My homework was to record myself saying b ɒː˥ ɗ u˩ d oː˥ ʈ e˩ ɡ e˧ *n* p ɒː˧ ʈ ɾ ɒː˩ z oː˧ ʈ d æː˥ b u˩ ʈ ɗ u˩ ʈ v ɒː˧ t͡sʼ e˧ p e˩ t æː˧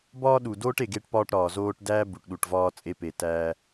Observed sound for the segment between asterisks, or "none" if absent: ʈ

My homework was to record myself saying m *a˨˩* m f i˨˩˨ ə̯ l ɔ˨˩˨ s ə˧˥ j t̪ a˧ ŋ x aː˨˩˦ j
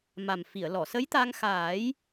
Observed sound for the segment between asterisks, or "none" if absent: a˨˩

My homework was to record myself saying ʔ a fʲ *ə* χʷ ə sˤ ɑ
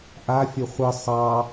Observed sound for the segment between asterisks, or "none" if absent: ə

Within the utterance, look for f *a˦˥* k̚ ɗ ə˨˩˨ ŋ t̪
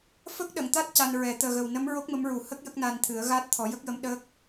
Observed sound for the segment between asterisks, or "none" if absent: ə˦˥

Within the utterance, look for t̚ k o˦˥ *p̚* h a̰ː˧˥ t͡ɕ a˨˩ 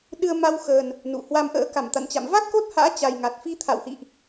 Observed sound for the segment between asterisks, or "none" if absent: t̚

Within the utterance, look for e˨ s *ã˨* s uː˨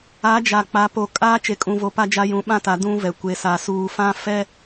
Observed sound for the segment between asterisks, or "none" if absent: a˨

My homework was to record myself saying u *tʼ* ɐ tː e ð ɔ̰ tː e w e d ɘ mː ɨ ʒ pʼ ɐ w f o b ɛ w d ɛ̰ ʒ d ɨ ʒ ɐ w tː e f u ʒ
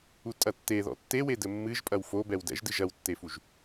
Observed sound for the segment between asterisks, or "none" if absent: tʼ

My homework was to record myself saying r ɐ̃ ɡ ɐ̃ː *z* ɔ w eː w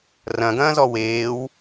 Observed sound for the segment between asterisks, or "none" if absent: z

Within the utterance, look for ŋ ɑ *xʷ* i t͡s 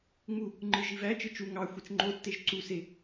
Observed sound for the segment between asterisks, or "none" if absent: xʷ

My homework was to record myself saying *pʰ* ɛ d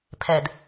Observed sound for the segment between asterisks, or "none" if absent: pʰ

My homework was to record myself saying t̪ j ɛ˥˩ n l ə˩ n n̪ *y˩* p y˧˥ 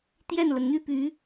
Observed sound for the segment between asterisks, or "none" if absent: y˥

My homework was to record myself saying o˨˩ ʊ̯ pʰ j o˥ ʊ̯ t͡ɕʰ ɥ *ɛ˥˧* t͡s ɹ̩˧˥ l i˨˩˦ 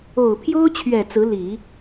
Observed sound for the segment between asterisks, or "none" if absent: ɛ˨˩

